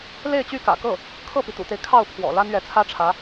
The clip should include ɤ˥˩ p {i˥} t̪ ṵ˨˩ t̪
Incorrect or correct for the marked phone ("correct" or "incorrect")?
incorrect